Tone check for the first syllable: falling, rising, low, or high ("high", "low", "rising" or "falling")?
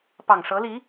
low